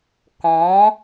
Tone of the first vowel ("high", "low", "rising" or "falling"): rising